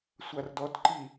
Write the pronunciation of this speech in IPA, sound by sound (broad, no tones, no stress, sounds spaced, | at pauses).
sʷ a r d ɔ t ǃ i